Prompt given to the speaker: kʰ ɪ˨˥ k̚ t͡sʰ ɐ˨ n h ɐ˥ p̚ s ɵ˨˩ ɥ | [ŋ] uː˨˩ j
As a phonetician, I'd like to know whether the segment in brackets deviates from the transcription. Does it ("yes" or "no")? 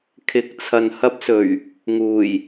no